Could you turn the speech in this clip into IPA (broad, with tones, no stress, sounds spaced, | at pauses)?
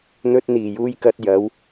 n̪ ɵ˧ t̚ n̪ iː˨˩ j uː˧ j k ɐ˧ t̚ j ɐ˨˥ w